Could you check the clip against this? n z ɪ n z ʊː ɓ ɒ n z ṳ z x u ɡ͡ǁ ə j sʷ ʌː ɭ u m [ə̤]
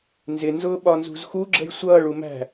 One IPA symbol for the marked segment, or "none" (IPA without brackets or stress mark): æ̤